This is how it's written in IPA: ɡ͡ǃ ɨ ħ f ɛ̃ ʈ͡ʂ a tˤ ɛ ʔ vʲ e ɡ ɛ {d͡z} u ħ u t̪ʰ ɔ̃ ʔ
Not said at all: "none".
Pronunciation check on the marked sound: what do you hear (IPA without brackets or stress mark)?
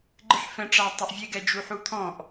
d͡ʒ